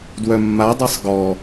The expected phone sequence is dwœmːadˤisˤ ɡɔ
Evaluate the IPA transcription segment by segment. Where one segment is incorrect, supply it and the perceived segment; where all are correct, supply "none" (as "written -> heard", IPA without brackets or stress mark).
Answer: none